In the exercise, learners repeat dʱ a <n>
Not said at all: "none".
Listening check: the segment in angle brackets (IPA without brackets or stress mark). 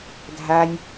nʲ